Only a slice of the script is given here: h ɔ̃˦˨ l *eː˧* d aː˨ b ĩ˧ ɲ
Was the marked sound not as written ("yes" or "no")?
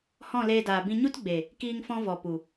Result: no